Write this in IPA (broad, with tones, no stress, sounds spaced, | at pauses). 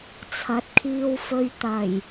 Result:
t͡sʰ ɐ˨˥ t̚ kʰ iː˧ w f ɵ˧ ɥ t̪ ɐ˨˩ j